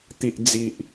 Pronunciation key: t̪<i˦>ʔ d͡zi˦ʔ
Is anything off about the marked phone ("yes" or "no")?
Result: no